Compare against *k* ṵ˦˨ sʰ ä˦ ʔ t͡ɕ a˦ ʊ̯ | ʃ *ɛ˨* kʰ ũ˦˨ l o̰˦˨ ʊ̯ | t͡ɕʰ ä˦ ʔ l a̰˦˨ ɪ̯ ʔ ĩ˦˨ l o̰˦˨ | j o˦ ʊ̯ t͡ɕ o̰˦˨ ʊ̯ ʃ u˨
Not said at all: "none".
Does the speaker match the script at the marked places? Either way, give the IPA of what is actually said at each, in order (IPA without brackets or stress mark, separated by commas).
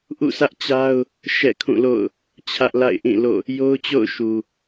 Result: ʔ, ɛ̰˦˨